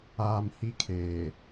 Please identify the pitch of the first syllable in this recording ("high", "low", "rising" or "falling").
low